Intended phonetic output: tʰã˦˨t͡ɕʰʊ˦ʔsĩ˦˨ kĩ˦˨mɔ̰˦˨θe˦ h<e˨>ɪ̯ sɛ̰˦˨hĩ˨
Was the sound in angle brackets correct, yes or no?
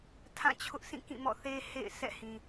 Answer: no